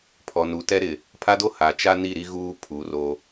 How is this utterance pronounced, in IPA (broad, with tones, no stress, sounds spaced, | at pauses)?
pʰ ɔ˨ n u˨ t ɛ˦ ɾ ɪ˨ | pʰ a˦ d o˦ h a˨ t͡ʃ a˦ n i˦˨ ɾ i˦ ɣ uː˦ pʰ u˨˦ r o˦